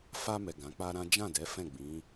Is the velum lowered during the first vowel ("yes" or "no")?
no